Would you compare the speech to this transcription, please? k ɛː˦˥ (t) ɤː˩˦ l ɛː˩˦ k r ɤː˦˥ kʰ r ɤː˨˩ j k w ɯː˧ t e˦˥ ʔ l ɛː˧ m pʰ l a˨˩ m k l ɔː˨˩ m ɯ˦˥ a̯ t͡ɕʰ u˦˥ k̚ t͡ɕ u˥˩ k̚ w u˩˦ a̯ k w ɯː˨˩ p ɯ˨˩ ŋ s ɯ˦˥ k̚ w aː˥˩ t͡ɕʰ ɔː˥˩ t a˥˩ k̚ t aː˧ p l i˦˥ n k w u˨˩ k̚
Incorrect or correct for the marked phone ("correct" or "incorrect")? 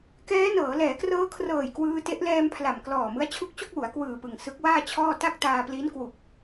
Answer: incorrect